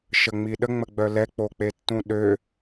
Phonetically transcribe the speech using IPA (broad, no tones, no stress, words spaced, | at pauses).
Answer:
ʃəŋ͡miɗə ŋ͡məɡ͡bœlɛ k͡pok͡petːũɗø